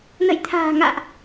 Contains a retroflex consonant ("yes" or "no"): no